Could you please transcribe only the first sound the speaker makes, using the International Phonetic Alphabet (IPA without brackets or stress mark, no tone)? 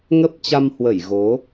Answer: ŋ